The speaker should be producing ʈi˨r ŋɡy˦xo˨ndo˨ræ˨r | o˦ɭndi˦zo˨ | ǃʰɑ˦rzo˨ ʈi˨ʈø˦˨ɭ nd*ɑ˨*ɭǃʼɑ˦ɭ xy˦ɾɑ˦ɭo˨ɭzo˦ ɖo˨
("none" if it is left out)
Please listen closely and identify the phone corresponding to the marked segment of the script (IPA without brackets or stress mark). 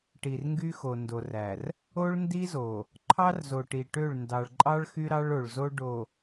ɑ˨